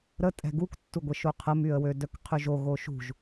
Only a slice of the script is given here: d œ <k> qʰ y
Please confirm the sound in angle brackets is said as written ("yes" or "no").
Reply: yes